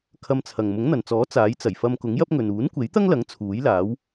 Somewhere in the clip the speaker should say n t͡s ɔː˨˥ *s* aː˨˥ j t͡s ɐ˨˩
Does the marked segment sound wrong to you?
yes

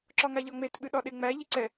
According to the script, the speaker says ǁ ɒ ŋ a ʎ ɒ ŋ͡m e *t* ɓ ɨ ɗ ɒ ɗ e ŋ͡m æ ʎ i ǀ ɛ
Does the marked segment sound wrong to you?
no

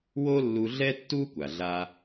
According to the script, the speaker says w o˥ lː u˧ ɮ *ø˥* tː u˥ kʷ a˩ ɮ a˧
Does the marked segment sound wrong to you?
yes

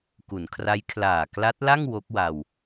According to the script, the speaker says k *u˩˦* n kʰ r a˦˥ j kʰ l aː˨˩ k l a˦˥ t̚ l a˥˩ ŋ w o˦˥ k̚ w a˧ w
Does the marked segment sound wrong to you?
no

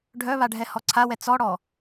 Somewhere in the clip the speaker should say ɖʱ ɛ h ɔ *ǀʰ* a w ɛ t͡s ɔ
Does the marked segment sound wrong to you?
no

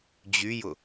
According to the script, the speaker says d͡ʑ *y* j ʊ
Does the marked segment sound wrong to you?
no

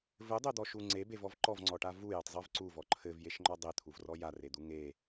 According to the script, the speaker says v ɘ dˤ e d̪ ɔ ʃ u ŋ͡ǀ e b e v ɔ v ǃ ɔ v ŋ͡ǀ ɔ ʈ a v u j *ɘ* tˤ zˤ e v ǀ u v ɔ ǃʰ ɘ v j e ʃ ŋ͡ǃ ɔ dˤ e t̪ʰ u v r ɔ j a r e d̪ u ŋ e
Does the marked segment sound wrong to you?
no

